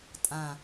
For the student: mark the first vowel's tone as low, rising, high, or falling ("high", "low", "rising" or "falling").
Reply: low